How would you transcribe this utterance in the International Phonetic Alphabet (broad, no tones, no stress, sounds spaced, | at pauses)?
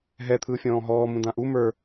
ɦ ɛ t̪ʰ ɯː fʲ ɔ̃ː ɦ ɔː m ũ d ã ʔ u m ə˞